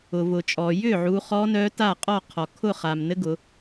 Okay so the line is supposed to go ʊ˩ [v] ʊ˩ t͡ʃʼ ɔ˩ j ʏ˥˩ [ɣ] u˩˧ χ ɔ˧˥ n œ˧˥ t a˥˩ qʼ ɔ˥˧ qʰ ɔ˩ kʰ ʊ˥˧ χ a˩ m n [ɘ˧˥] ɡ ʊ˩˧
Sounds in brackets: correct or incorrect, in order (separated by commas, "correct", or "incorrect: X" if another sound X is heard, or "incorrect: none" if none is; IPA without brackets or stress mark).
correct, incorrect: ʕ, correct